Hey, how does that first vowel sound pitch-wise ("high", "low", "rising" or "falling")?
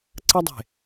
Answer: high